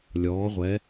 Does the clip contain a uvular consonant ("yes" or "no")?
yes